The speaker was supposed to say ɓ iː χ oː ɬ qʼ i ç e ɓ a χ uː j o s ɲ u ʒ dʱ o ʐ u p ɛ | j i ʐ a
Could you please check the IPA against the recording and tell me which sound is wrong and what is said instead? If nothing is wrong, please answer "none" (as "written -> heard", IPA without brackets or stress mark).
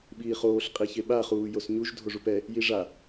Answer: none